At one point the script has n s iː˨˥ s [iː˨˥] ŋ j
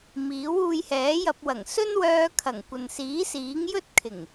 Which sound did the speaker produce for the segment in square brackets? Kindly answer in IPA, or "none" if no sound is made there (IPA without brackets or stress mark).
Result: iː˨˥